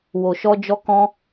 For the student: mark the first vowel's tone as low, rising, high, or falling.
low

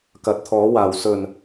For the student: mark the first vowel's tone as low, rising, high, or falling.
rising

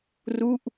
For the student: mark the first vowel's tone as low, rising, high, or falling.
falling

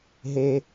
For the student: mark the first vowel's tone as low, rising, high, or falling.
high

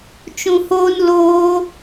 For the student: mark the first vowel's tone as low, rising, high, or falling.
low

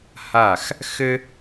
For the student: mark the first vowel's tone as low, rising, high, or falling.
falling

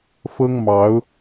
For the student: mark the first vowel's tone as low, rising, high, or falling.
high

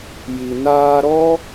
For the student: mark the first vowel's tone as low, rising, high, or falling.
low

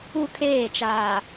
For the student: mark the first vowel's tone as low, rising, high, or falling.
high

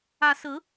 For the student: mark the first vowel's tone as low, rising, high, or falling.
rising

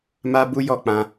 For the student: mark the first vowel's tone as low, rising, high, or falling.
high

